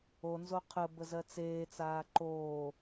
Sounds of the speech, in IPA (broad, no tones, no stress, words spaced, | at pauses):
onzo qʰə bəzɜt͡seːt͡saː ǃoː